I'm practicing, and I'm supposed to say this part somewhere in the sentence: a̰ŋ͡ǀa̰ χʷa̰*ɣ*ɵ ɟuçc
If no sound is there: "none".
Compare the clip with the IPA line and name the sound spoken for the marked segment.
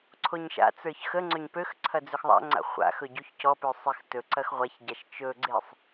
x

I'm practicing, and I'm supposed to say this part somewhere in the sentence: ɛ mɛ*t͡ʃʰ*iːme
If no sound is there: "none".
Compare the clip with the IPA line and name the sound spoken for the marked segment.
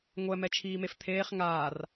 t͡ʃʰ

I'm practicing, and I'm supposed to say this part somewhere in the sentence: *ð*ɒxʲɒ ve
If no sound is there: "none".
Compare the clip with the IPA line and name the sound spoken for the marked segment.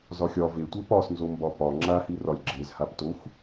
z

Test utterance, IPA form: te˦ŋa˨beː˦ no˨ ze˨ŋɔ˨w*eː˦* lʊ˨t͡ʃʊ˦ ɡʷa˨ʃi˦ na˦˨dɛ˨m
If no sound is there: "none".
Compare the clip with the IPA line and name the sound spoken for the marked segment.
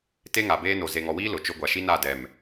iː˦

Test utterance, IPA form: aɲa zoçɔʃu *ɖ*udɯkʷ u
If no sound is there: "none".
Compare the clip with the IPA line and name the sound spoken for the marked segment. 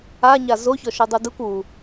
dˤ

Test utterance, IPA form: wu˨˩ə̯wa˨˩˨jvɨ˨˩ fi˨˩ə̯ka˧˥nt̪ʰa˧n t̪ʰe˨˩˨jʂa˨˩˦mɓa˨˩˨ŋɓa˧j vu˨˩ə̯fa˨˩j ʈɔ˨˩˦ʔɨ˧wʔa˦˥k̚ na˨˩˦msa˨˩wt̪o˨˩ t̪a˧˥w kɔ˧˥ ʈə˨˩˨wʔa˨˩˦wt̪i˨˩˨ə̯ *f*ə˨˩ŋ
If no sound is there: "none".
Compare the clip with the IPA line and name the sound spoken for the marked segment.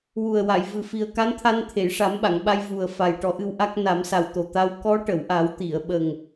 ɓ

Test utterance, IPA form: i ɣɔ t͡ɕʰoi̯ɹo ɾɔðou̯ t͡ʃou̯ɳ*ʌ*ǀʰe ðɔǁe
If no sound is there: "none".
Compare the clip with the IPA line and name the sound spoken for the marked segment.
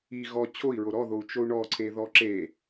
ɔ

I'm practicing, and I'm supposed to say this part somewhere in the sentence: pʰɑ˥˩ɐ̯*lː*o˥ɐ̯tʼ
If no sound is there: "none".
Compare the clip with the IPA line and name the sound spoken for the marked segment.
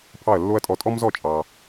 lː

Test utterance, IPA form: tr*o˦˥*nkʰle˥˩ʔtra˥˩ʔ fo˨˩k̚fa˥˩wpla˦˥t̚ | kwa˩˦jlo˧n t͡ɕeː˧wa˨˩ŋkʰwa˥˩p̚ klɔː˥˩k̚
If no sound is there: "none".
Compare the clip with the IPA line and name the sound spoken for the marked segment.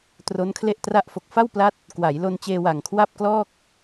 o˦˥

